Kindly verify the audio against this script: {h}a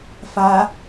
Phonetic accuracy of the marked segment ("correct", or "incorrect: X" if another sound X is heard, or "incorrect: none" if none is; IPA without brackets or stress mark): incorrect: f